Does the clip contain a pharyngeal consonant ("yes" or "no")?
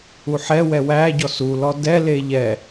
yes